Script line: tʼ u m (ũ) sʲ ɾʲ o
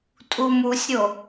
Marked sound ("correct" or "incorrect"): incorrect